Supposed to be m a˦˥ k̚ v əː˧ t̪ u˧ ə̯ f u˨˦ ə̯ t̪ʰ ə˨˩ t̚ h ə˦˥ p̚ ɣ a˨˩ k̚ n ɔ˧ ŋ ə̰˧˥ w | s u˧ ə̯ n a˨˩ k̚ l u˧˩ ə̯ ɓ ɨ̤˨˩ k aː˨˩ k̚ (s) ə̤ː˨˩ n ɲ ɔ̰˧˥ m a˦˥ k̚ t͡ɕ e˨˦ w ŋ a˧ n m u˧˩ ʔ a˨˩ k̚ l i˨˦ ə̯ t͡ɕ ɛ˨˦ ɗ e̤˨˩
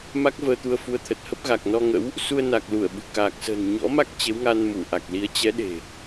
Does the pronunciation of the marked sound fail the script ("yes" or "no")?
no